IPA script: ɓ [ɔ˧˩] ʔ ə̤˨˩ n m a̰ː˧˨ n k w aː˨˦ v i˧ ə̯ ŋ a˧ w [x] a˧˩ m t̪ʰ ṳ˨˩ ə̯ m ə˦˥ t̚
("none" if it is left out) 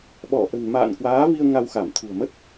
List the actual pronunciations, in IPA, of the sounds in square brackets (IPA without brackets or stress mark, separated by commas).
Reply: ɔ˧˩, x